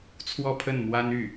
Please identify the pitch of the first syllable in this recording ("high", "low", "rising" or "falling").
falling